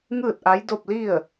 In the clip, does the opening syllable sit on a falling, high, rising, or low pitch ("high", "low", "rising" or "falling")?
falling